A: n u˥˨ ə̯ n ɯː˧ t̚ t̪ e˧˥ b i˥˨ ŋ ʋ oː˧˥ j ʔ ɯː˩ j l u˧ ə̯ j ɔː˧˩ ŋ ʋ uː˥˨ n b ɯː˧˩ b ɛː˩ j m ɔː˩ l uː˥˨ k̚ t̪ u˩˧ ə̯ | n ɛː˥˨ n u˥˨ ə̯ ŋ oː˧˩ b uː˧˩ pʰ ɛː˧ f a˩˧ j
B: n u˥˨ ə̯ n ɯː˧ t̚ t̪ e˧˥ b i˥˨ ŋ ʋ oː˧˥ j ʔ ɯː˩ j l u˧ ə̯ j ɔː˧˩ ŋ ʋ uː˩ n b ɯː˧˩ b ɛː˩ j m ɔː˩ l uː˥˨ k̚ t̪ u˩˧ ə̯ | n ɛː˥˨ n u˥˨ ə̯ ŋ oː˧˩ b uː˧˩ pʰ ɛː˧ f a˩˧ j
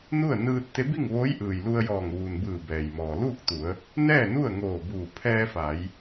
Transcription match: B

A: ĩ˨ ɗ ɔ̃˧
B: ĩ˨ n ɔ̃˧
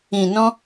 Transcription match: B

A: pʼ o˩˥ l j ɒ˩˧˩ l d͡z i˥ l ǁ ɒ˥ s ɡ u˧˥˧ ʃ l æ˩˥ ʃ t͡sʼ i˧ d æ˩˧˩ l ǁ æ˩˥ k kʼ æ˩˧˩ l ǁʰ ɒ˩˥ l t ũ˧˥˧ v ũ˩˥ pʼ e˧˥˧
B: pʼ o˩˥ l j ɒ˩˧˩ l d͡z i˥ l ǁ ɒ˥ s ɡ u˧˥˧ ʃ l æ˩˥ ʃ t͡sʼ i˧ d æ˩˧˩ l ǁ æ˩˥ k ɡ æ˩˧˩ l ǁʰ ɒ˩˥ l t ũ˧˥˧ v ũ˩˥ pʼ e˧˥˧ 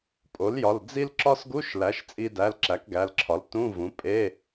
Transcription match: B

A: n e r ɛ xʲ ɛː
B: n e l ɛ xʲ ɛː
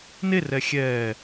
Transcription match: A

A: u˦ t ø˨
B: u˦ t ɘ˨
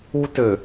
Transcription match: A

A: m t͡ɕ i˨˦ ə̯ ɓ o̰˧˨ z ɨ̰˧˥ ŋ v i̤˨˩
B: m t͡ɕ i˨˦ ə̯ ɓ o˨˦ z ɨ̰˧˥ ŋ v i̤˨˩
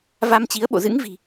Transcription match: A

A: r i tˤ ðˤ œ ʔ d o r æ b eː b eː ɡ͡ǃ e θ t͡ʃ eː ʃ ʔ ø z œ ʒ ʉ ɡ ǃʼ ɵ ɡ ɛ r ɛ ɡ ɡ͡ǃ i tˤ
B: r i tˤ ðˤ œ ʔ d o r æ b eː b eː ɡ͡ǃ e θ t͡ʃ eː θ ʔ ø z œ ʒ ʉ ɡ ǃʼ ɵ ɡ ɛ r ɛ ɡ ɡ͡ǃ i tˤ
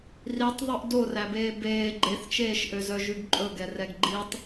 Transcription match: A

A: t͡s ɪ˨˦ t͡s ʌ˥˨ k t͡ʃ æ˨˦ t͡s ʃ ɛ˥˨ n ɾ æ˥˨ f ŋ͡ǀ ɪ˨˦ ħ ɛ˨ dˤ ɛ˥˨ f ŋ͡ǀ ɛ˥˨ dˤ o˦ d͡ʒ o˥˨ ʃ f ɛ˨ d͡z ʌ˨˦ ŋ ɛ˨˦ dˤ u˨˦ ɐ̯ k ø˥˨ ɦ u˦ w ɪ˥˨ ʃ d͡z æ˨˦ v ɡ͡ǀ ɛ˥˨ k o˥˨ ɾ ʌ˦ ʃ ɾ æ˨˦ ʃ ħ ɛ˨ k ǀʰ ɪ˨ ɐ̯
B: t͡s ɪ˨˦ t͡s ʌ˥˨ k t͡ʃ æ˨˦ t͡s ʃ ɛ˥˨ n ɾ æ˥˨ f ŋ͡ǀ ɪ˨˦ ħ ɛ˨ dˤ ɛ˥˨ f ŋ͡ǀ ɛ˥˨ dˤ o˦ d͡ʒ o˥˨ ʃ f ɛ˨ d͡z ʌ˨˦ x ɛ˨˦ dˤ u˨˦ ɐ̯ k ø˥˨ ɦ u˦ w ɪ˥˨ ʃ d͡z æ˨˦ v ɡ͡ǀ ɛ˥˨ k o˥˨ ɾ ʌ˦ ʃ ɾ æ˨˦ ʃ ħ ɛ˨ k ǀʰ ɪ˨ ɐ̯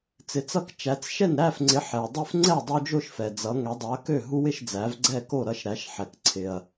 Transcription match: A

